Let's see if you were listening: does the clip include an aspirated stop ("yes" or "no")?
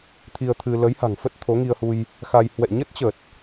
yes